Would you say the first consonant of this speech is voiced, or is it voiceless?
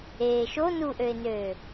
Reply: voiceless